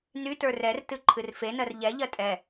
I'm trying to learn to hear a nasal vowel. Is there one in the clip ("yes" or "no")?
no